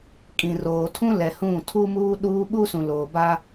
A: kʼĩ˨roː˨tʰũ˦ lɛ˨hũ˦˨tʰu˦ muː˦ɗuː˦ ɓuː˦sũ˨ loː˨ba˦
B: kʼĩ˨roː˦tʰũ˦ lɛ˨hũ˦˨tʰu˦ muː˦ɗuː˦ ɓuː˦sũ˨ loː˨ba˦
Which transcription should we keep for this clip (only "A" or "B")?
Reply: A